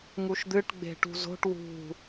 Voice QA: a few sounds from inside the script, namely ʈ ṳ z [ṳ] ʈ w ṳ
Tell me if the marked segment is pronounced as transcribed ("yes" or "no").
no